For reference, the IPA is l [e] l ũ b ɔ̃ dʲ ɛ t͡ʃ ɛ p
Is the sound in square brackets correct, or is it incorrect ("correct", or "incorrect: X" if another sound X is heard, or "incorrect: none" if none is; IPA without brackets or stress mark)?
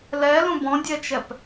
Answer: incorrect: ɛ